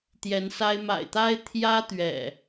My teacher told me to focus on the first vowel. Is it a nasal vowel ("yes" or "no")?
no